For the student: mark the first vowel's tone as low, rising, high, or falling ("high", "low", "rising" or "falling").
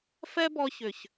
high